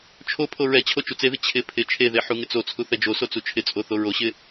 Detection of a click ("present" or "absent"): absent